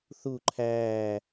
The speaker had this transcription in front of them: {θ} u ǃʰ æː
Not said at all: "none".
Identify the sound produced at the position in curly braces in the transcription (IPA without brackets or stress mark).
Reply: θ